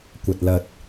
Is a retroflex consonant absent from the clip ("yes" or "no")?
yes